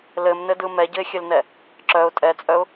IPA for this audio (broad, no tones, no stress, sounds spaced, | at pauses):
l ɘ m n ɘ d ɯ m ɛ ɟ ɘ ɪ̯ xʲ ɘ l n ɛ | ǁ œ ʊ̯ tʼ ɛ t͡sʼ œ ʊ̯